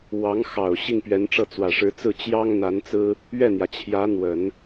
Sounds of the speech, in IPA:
w ɑ˧˥ ŋ x ɑ˨˩ ʊ̯ ɕ i˥˩ ŋ p ɥ ɛ˧˥ n ʈ͡ʂ ɤ˥˩ t͡s w ä˨˩ ʂ ɻ̩˧˥ t͡s ɹ̩˥˩ t͡ɕ j ɑ˥ ŋ n̪ a˧˥ n t͡s ɹ̩˥ | ɥ ɛ˥˩ n̪ j ä˩ t͡ɕʰ j ä˧˥ n̪ w ə˨˩˦ n

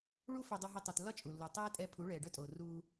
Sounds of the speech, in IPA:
ɭ u˦ f œ˧ dˤ u˧ ɦ i˧ tˤ u˨ t lː ɒ˦ t͡ʃʼ u˨ lː u˨ tˤ ɛː˦ tʼ ɛ˧ pʰ u˨˦ ɭ ɛː˨ ɖ œ˦ tʼ oː˨ r uː˧

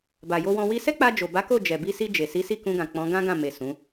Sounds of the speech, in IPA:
b a˨ j o˧ w ɔ̃˧ w i˧ s ɛ˦ k͡p a˧ d͡ʒ o˨ b a˨˦ k o˦˨ d͡ʒ ɛ˨ b i˧ s i˧ d͡ʒ e˨ s i˨˦ s i˦˨ k ũ˧ ɡ ã˨ k͡p ɔ̃˨˦ ɡ ã˦ ɡ ã˦˨ m e˨ s ũ˨˦

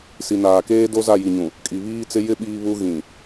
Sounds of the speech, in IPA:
s i˨ n aː˨ k eː˦ d o˦ z a˦˨ j i˨ ɲ ũ˨ | kʼ i˨ β iː˦ t͡s ɪ˦ j ɪ˦ ɓ iː˦ β u˦ ɣ ĩ˨

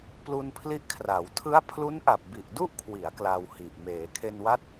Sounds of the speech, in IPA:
p l u˧ n pʰ l i˦˥ ʔ kʰ r a˩˦ w tʰ ɯ˦˥ a̯ pʰ l u˦˥ n ʔ a˨˩ p̚ b i˨˩ ʔ d u˥˩ ʔ kʰ w i˩˦ a̯ k l a˧ w h i˨˩ ʔ m eː˩˦ kʰ e˧ n w a˦˥ t̚

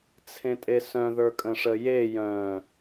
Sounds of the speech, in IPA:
t͡sʰ ẽ tʼ e s œ̃ ð ə˞ kʼ ə̃ ʂ ə j e j œ̃

